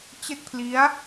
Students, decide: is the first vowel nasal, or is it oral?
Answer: oral